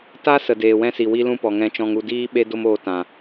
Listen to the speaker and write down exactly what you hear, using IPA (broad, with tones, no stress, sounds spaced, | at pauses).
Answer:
t a˦ s ə˨ d eː˨ w ɛ̃˧ s i˨ w i˧ l ũ˧ p ɔ˨ ŋ ɛ̃˧ t͡ʃ ɔ̃˧ ŋ u˧ d iː˦ ɓ e˦ d o˦ m oː˧ t ã˨